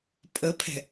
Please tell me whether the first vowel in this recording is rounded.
no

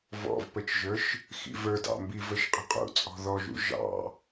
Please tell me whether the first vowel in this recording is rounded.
yes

